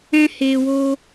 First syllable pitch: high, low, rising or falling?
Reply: high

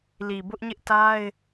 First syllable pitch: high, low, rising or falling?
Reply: low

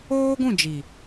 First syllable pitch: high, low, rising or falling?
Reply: high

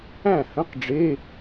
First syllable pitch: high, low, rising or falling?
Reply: falling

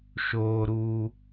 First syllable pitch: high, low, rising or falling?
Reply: high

